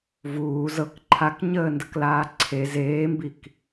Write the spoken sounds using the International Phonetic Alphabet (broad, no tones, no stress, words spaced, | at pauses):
vuː zɤk ǃʰakɲəːndəklaː ǀʰe zeːmbik